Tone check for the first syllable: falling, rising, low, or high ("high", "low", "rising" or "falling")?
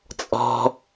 low